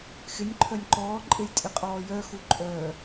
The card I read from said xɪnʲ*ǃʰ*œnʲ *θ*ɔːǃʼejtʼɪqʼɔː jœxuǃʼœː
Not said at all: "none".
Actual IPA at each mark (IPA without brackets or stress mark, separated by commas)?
ǃʰ, ǃ